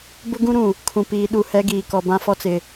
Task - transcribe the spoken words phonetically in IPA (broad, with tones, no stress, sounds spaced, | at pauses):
b ʊ˦ ɡ ũ˦ ɾ ũ˨ | kʰ ũ˨ p iː˨ ɗ u˦˨ h ɛ˦ ɡ iː˨ k ɔ˨ b ã˦ f ɔ˦ t͡s ɪ˨